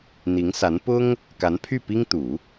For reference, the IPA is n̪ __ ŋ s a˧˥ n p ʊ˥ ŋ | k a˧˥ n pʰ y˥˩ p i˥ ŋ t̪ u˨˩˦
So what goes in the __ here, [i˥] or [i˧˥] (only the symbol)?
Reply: i˧˥